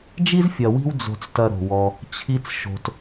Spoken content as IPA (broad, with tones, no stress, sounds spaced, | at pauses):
d͡ʒ i˥ z fʲ ɐ˨ w i̤˦ w d͡z o̤˨ t͡s t ɐ˨ ɾ o̤˩ w ɔ˨ | t͡ɕʰ i˦ t͡s ʃ o̤˨ t